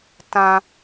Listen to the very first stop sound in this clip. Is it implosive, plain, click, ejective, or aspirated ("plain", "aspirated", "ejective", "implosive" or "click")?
plain